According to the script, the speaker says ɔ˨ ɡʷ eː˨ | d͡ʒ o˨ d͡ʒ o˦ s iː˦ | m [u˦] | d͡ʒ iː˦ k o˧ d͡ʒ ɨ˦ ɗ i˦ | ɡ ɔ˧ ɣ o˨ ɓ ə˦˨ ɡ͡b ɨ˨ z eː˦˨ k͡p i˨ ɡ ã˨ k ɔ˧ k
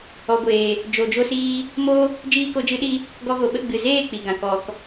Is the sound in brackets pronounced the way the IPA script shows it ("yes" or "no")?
no